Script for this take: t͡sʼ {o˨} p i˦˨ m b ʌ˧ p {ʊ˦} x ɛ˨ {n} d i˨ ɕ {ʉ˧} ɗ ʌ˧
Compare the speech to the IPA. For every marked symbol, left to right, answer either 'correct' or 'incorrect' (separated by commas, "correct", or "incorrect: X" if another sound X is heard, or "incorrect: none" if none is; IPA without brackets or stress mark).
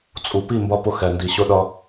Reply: incorrect: u˨, incorrect: ʊ˧, correct, incorrect: ʊ˧